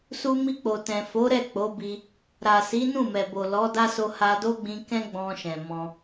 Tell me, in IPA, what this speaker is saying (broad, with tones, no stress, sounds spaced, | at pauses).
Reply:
s u˧ m i˧ k͡p o˨ t ɛ̃˨ f o˨˦ ɾ ɛ˦˨ k͡p o˨˦ b i˧ | ɾ a˨ s i˨˦ n ũ˦˨ m ɛ˨ b o˨ l ɔ˨˦ d a˦ s o˧ h a˧ d o˦ ɡ͡b ĩ˧ k ɛ̃˦ ɡ͡b ɔ̃˧ ʃ ɛ̃˨ m ɔ̃˧